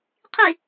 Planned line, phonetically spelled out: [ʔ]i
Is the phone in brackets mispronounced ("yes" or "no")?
yes